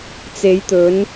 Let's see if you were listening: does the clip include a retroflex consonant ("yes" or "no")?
no